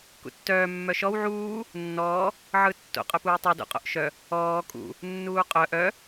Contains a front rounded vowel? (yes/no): yes